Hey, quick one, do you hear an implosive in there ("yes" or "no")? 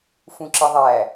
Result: no